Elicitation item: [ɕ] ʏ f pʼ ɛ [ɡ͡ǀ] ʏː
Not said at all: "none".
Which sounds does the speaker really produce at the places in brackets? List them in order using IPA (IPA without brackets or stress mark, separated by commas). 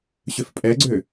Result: ɕ, ɡ͡ǀ